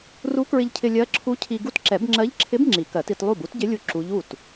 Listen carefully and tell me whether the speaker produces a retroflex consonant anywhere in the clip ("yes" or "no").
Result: no